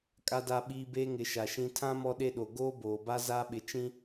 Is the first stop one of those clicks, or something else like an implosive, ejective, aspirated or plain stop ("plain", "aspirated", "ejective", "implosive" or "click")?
ejective